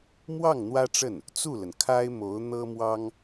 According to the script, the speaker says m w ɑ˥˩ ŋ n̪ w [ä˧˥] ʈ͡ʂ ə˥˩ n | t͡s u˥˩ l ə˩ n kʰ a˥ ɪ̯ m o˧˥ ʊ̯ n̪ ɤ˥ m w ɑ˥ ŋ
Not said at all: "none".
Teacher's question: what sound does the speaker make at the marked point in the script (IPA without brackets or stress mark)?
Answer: ä˥